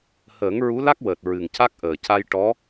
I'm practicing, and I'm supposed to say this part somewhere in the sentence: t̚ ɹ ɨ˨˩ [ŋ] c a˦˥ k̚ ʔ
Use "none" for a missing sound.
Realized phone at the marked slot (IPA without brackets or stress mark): ŋ